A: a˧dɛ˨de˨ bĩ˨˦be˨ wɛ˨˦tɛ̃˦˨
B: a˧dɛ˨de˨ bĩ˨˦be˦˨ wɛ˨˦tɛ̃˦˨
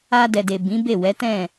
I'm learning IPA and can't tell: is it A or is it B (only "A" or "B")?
B